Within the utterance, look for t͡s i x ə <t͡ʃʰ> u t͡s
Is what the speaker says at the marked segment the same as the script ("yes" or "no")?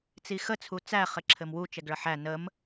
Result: no